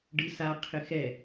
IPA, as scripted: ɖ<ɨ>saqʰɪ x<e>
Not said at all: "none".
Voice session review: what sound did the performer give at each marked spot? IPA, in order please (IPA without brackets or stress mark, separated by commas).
ɨ, ɛ